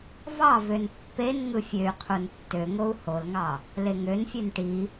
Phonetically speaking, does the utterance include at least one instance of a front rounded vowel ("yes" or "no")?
yes